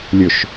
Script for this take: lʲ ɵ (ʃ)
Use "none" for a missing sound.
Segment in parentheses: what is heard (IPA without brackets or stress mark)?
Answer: ʃ